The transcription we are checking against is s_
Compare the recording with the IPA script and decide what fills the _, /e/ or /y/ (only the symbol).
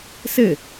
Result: e